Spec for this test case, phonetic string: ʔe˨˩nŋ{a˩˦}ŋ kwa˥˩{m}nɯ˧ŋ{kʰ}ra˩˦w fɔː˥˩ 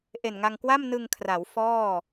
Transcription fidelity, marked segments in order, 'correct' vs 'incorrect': incorrect: a˧, correct, correct

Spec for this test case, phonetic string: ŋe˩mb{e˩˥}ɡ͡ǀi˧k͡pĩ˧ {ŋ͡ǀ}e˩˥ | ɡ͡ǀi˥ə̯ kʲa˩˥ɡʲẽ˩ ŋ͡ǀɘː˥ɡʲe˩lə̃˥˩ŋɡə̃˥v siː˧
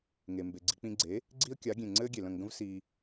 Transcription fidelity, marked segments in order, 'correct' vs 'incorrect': incorrect: e˩, incorrect: ɡ͡ǀ

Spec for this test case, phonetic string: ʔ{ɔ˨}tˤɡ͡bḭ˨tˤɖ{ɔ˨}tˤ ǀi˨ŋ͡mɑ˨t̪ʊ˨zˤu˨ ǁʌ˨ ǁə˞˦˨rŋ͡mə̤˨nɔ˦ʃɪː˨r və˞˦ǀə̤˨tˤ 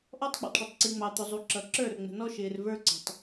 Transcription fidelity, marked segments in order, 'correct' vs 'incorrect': incorrect: ɔ˦, incorrect: ə˨

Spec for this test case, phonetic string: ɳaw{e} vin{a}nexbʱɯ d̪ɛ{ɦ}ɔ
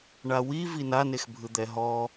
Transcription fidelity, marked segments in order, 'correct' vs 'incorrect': incorrect: i, correct, correct

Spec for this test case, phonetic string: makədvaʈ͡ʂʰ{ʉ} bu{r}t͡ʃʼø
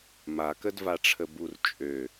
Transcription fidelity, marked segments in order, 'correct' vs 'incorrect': incorrect: ə, correct

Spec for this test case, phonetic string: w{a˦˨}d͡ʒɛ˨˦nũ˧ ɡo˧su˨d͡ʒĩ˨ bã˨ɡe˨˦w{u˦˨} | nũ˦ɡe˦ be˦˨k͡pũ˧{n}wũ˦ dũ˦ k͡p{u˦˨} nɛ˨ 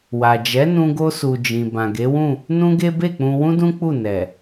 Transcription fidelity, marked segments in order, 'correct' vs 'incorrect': incorrect: a˨, incorrect: ũ˦˨, incorrect: none, correct

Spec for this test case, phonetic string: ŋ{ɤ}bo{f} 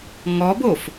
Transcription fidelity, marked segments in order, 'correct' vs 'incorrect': incorrect: ɔ, correct

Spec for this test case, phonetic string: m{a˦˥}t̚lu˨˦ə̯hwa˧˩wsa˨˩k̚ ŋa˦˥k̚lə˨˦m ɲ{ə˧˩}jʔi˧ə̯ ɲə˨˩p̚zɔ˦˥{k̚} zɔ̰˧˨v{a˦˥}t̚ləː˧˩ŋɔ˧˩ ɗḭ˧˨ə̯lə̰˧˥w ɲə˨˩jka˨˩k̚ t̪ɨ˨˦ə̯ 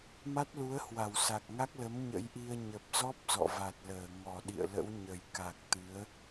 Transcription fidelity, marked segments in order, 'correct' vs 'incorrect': correct, incorrect: ə̰˧˥, incorrect: p̚, incorrect: a˨˩

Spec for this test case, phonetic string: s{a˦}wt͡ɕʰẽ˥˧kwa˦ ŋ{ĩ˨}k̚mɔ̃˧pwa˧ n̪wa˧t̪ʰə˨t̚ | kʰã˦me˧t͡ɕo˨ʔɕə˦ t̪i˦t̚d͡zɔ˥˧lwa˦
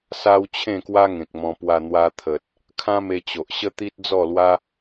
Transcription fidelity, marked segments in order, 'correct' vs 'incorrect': correct, incorrect: ẽ˨

